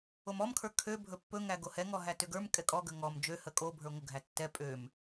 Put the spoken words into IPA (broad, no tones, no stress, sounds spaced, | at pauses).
o m ɔ m kʰ ə˞ kʰ ø bʱ ɵ pː ɵ ŋ æ ɡ o h ɛ ŋ ɔ ɦ æ t ø ɡ ə˞ m kʼ ɛ kʼ ɔ ɡ ə ŋ ɔ m d͡ʒ ø h ə kʼ o bʱ ə˞ ŋʷ ə ɡʱ æ tː ɛ pʼ ø m